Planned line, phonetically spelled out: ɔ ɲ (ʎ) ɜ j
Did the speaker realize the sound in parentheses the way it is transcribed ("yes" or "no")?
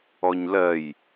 no